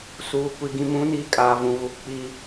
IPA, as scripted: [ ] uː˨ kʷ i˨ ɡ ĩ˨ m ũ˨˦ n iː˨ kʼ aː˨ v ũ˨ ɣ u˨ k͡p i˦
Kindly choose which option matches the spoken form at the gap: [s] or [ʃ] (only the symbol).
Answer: s